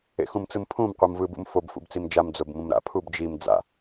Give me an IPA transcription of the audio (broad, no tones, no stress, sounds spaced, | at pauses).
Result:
ḛ x ũ m t͡s ɯ m pʰ ũ m qʷ ɯ m v ɯ b ṵ m f o b f ṵ b t͡s i m d͡ʒ a m d͡z o b m ũ m ɾ a̰ pʰ u b d͡ʒ i m d͡z a̰